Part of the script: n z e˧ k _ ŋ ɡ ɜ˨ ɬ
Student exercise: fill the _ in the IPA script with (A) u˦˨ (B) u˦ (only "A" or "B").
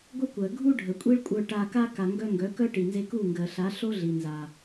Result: A